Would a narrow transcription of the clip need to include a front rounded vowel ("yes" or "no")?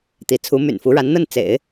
yes